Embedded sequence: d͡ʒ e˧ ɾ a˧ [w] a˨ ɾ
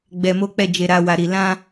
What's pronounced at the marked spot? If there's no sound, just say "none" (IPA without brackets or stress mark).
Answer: w